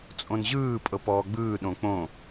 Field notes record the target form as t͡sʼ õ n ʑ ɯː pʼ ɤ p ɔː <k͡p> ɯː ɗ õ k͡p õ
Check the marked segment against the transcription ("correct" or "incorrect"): incorrect